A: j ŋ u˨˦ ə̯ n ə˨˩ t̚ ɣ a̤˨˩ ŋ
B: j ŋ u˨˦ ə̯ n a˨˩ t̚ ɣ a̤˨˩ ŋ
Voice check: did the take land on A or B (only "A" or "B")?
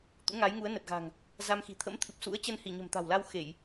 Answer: A